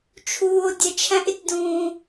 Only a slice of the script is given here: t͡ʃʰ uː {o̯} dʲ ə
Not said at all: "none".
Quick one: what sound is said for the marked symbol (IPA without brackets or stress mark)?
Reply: o̯